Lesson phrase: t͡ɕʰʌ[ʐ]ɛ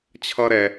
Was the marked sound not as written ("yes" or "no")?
yes